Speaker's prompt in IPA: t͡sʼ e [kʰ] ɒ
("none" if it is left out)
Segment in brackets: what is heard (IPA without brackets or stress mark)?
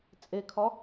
kʰ